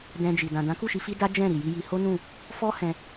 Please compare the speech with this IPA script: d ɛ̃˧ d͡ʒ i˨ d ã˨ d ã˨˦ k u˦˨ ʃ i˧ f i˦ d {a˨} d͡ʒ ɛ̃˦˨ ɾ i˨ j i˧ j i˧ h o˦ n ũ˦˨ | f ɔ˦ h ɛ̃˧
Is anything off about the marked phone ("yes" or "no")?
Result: yes